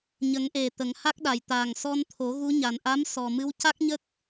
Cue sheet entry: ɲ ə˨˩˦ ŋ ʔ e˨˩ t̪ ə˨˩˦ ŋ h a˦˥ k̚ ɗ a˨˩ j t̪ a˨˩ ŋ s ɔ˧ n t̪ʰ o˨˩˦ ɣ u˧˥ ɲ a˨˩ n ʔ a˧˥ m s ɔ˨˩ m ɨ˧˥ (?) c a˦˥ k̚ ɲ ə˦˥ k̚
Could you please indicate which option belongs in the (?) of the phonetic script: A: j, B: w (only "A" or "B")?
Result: B